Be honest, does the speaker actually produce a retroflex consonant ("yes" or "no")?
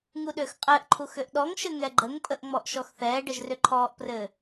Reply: yes